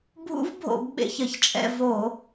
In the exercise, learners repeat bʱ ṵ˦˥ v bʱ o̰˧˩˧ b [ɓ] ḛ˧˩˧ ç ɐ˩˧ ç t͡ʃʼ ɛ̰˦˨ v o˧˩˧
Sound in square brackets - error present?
no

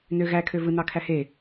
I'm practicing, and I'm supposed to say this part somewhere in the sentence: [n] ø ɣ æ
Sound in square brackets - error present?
no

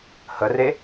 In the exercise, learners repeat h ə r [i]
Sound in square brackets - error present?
yes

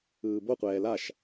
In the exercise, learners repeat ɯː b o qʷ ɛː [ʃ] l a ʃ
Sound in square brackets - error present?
yes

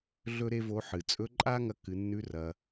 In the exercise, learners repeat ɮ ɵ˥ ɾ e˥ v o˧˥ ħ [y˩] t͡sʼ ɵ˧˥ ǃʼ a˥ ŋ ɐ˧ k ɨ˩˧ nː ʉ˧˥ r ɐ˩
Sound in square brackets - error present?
yes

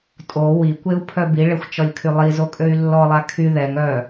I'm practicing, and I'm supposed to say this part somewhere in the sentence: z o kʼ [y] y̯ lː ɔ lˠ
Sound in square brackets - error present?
yes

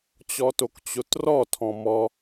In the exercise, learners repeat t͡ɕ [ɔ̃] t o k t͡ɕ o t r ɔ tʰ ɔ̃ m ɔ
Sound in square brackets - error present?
yes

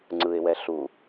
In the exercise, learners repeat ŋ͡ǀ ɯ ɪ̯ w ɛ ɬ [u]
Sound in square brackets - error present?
no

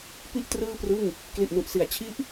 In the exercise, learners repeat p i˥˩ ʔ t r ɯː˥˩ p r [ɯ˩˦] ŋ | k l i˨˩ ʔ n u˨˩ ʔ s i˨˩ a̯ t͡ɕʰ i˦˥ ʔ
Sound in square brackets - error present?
yes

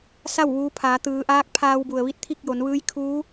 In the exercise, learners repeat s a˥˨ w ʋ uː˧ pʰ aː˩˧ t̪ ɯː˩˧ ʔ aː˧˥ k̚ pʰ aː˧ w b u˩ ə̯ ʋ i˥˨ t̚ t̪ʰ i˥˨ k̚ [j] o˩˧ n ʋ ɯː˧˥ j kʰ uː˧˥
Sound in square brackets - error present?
no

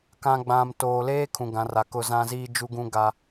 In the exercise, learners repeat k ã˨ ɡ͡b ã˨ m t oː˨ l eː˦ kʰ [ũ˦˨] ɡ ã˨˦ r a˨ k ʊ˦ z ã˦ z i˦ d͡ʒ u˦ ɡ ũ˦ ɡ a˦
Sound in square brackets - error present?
yes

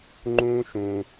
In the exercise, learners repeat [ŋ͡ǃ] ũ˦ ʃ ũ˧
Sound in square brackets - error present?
no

